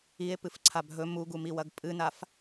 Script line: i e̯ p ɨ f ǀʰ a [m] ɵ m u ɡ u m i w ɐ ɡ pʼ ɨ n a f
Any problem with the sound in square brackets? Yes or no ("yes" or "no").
yes